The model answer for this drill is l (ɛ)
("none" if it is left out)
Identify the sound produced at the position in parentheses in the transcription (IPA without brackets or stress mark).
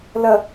ə